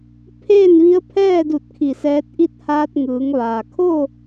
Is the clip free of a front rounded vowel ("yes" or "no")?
yes